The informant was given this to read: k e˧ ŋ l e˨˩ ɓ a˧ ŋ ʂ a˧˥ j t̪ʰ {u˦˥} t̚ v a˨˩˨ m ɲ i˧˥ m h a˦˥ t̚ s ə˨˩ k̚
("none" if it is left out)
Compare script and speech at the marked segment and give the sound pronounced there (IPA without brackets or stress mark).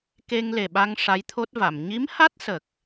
o˦˥